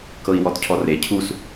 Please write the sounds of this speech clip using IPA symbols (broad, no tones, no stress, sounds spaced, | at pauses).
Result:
k ɤ i̯ w ɔ t cʰ ɔ r e cʰ u s